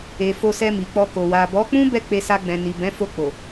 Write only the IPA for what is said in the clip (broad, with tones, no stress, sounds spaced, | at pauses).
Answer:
e˨ f o˧ s ɛ˧ m i˨ k͡p ɔ˧ k o˨ w a˨ b ɔ˨˦ k͡p ũ˦ b ɛ˦˨ k͡p e˧ s a˧ ɡ͡b ɛ̃˨ n i˨ b ɛ̃˨˦ f o˧ k͡p o˨